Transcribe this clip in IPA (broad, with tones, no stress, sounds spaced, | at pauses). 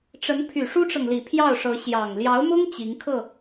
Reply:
ʈ͡ʂ ə˧˥ n pʰ y˨˩ ʂ u˥ ʈ͡ʂ ɤ˨ ŋ l i˨˩ pʰ j ɑ˥˩ ʊ̯ ʂ ɤ˧˥ ɕ j ɑ˨˩ ŋ l j ɑ˧˥ ʊ̯ m ʊ˥ ŋ t͡ɕ i˧˥ ŋ kʰ ɤ˥˩